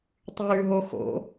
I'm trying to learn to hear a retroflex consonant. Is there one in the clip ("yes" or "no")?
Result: no